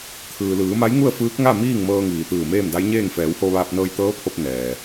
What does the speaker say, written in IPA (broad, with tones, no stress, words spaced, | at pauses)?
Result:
t̪ʰɯː˩ lɯː˩˧ma˧˥j ŋu˥˨ə̯fɯː˧˥k̚ŋa˥˨ miː˥˨ŋmɤː˧ŋiː˩ t̪ɯː˧˩meː˥˨mda˧˥jɲeː˥˨ŋ fɛː˩˧who˧ʋaː˧p̚ nɤː˧jt̪ɤː˧˥pʰo˧p̚ nɛː˩